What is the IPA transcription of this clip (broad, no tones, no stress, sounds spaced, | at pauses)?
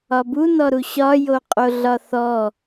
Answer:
ɒ b u n ɔ ɾ u ɕ ɒ j o qʼ o ɮ ɒ θ ɔ